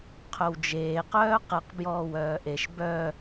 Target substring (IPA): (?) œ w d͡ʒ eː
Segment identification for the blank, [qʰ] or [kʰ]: qʰ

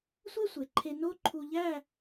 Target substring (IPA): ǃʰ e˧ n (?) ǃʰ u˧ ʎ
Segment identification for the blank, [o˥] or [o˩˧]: o˥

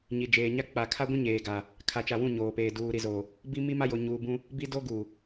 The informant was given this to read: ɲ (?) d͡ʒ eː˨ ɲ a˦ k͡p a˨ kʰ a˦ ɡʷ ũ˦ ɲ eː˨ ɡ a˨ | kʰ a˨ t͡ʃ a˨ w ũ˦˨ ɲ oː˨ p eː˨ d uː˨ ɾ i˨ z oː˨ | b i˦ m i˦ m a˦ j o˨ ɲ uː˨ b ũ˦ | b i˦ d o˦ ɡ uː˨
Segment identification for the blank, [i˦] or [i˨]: i˨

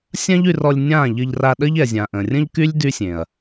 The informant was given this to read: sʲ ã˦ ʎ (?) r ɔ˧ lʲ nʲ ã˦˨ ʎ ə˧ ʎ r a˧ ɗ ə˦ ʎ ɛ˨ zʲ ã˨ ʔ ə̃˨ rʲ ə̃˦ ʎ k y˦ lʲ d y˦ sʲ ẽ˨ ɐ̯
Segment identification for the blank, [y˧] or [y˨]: y˧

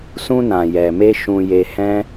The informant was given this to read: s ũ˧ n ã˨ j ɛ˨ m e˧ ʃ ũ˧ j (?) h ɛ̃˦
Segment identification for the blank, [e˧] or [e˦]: e˧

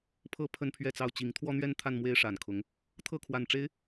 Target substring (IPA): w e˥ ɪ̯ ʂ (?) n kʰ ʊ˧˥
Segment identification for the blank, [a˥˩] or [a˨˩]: a˨˩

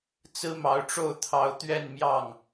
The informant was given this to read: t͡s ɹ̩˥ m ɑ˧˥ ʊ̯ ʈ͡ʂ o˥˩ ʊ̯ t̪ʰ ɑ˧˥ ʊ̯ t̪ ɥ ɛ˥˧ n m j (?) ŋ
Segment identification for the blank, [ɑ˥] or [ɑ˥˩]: ɑ˥˩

